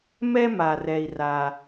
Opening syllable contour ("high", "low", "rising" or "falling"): high